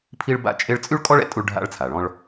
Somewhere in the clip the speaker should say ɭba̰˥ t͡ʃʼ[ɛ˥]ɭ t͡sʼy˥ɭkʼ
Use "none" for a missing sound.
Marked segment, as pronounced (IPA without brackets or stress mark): e˥